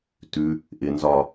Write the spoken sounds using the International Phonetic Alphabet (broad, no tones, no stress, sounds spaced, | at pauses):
t ʉ | ʔ ɪ n z ɒ